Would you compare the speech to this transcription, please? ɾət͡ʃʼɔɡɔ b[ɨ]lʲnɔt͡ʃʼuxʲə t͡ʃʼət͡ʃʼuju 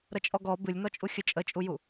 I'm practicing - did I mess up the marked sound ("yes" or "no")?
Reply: no